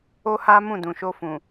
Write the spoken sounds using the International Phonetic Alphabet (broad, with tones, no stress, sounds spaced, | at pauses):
o˦ h a˦ m ũ˦˨ d ũ˨ ʃ o˧ f ũ˨